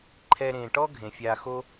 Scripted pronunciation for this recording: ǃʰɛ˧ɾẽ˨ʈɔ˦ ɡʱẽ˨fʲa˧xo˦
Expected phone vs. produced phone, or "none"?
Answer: none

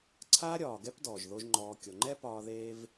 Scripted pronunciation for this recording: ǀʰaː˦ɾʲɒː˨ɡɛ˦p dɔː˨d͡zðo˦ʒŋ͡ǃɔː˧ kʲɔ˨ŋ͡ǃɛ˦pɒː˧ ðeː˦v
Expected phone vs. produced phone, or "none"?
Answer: d͡z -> ʒ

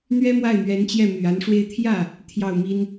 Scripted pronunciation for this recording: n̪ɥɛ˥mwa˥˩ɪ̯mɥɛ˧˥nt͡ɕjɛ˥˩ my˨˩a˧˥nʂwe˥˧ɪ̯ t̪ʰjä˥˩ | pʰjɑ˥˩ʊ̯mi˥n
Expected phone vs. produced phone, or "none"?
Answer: pʰ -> t̪ʰ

